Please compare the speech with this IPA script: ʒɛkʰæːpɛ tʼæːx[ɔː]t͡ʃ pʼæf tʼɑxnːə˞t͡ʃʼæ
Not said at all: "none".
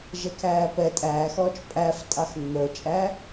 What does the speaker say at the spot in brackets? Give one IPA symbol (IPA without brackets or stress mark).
ɔː